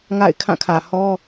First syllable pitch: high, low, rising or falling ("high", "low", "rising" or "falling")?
falling